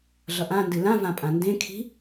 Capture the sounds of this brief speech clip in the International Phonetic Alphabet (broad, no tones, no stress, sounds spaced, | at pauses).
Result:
ɮ ʌ ʔ ã n d ɨ l ã v ã pʼ ã n d ẽ kʰ i̤